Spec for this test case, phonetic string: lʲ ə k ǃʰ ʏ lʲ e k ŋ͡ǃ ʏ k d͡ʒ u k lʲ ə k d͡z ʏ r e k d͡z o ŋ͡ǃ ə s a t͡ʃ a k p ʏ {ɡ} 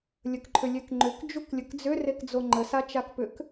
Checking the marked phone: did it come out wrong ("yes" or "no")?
yes